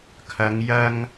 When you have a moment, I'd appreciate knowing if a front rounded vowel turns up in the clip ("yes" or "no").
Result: no